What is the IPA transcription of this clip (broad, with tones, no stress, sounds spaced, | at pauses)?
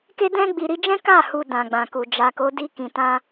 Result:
k e˧ d ɛ̃˧ ɡ͡b i˨ ɾ i˧ d͡ʒ ɛ̃˦ k a˦˨ h u˧ d ã˨ ɡ͡b ã˨ k u˨ d͡ʒ a˨ k o˨˦ d i˧ k ĩ˨ t ã˧